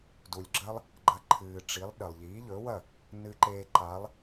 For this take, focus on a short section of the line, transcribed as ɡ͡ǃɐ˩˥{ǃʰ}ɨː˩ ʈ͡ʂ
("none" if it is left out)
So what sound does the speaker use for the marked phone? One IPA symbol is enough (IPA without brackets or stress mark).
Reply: ǃʰ